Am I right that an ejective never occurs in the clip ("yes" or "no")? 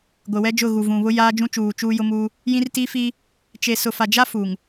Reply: yes